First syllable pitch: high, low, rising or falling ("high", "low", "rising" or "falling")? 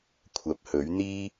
rising